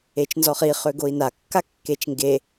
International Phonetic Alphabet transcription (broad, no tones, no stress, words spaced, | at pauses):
et͡ʃnzɔχi χøɡoi̯na kːakːet͡ʃŋɡe